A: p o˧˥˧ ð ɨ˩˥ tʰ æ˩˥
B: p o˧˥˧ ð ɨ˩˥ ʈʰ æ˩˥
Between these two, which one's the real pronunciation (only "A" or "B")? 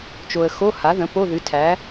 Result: A